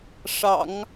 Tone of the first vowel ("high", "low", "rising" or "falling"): low